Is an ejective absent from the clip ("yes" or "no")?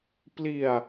yes